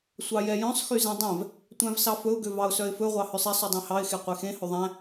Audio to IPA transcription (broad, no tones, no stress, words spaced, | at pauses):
sʷɑjɛjœ̃sˤ xyzɛ̃dˤɛ̃v | tʷæ̃vsɑfɵʊ̯ ɡøvɑʊ̯sœɪ̯fɵ ʁʷɑhœsˤɛsˤ ydˤɛ̃hɑɪ̯ xeqʷɛxẽ hɵðˤæ̃